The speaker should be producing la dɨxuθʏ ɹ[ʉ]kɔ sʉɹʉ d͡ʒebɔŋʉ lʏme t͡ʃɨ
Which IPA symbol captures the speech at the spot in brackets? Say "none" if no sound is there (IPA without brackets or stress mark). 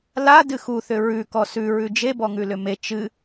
ʉ